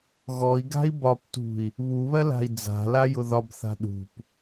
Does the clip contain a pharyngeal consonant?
no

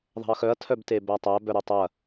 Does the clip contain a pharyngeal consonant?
no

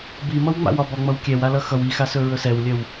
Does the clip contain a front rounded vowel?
yes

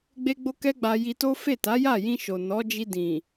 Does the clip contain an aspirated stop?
no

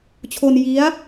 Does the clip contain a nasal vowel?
no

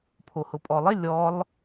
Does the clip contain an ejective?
yes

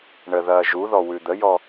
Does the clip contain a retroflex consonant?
yes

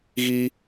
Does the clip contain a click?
no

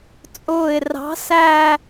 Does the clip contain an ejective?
yes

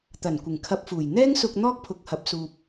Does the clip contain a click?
no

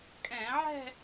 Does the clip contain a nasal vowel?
yes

